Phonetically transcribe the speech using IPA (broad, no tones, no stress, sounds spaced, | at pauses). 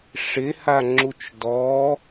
ʂ ɪ h a ŋ͡ǁ u t͡ʃ d ɔ